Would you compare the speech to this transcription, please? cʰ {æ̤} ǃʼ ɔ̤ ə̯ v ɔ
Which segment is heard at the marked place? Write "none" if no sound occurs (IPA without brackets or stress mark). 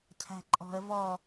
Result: æ̤